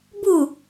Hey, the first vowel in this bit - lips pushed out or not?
yes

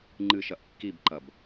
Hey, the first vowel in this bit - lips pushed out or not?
no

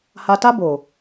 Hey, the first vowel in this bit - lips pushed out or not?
no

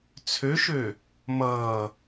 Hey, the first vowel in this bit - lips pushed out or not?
yes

